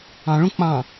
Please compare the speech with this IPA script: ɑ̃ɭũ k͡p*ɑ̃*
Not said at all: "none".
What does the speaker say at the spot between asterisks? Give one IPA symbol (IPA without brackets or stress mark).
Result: ɑ̃